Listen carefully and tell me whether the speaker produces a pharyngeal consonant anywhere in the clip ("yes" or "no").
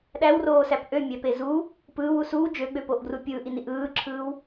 no